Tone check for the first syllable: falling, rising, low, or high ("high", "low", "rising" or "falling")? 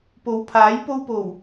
rising